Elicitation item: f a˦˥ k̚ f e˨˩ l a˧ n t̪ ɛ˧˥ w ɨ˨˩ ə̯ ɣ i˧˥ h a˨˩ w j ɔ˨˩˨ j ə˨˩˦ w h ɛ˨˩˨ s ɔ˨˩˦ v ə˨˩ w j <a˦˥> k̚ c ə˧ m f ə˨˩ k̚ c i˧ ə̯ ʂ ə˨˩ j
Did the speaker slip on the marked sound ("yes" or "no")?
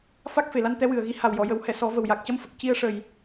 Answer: yes